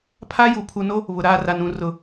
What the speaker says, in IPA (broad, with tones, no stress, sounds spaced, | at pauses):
pʰ a˦ j u˨ pʰ u˨ n o˦ | β ʊ˨ ɾ aː˦˨ r a˨ n ũ˨ r ʊ˨